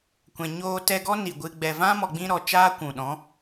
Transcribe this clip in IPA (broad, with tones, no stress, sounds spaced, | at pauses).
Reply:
kʷ ɛ̃˨ ɲ oː˧ t ɛ˧ ɡ ɔ˦ n i˨ ɡʷ ɨ˧ ɡ͡b ɛ˨ v ã˦ m ɔ˨ ɡ͡b ĩ˧ ɾ ɔ˨ t͡ʃ aː˦ kʷ ũ˨ ɗ ɔ̃˨˦